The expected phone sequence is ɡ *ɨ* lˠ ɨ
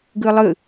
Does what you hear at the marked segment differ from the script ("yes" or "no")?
no